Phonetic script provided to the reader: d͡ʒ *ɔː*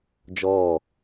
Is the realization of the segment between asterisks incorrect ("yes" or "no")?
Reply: no